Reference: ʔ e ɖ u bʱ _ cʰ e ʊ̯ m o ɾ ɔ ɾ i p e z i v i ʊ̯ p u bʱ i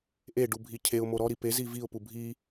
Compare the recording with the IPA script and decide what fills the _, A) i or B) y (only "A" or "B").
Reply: A